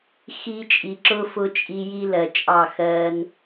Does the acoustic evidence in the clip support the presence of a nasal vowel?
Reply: no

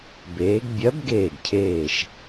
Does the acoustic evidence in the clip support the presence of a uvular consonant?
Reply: no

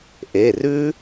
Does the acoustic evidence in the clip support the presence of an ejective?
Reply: no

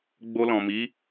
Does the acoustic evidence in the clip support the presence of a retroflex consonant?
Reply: no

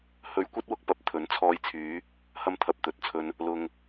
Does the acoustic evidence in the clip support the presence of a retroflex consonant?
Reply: no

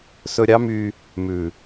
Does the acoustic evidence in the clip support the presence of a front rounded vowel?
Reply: yes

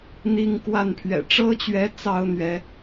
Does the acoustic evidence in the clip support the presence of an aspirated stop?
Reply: yes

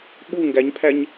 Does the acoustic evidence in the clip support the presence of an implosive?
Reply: yes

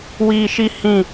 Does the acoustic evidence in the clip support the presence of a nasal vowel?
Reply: yes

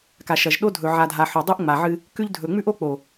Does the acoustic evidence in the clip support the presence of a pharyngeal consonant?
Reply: yes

